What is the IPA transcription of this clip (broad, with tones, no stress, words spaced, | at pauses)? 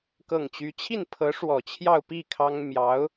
kɤ˥˩ŋt͡ɕy˥ t͡ɕʰi˥˩npʰɤ˧˥ ʂwɔ˨˩t͡ɕʰjɑ˥˧ʊ̯pi˥˩ kʰɑ˥ŋ mjɑ˧˥ʊ̯